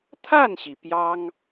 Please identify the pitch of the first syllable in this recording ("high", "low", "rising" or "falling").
falling